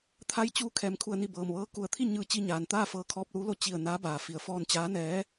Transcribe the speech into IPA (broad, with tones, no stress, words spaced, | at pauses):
t̪ʰa˧˥j t͡ɕuː˧˥ kʰɛː˩mkʰu˧˩ə̯ni˧˩ bɤː˩mʋɤː˧˥ku˧˩ə̯ t̪ʰi˥˨ɲɯː˧˩ t͡ɕi˧ɲaː˩nt̪aː˥˨fɤː˧ kʰɔː˧p̚luː˧˥lo˧ t͡ɕi˧˩ə̯ naː˧˥baː˩fi˩ə̯ fɔː˧nt͡ɕaː˧˥nɛː˧˥